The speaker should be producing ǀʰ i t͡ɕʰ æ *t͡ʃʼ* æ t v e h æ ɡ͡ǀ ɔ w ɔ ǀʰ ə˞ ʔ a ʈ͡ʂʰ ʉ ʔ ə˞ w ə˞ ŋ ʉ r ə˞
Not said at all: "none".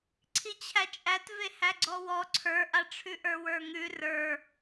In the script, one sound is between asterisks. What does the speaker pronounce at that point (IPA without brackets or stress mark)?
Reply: t͡ʃʼ